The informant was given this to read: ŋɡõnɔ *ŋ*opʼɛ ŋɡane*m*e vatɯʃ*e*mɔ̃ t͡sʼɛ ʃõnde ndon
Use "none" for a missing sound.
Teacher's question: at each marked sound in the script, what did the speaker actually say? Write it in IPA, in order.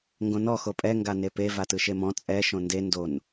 x, p, e

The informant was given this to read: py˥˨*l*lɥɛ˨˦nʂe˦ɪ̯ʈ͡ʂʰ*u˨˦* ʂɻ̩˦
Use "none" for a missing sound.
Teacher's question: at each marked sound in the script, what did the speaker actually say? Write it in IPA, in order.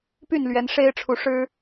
n, u˨˦

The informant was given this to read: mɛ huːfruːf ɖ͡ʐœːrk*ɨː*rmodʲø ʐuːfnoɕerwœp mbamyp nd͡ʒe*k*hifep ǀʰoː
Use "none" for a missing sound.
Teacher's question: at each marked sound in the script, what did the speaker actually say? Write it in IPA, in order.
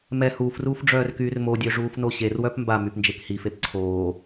yː, k

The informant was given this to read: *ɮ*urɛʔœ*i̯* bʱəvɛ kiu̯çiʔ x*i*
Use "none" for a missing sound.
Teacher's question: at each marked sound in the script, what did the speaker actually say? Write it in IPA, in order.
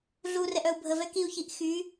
ɮ, u̯, y

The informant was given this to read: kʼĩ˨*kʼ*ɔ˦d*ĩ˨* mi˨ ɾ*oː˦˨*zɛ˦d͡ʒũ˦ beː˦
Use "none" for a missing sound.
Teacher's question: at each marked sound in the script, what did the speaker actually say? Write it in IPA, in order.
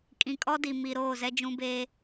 kʼ, i˨, oː˦˨

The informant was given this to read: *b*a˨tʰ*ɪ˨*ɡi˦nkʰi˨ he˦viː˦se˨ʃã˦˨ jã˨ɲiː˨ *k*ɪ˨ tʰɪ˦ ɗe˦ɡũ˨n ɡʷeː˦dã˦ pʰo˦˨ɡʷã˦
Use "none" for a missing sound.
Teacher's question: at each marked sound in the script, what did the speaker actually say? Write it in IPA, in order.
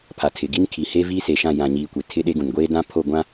pʰ, ɪ˨, kʷ

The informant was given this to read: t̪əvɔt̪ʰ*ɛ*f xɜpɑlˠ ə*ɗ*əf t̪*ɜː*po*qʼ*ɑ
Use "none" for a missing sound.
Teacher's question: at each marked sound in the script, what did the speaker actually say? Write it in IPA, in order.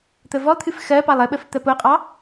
ɨ, ɓ, ɜ, qʼ

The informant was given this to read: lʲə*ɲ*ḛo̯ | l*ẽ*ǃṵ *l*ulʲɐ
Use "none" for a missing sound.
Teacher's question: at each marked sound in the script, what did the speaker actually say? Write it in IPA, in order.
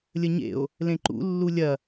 ɲ, ẽ, lː

